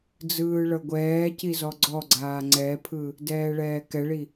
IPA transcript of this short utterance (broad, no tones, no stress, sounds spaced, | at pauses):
d͡z ɯː ɭ ɤ ɡʷ ɛː c i z ɔ ɡ͡ǀ ɔ ɡ͡ǀ aː ŋ͡ǀ ɛ pʰ ɯ | d ɛː ɭ ɛː k ɛ ɭ i